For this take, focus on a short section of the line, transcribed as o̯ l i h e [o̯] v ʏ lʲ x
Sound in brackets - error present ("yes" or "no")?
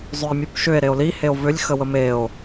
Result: no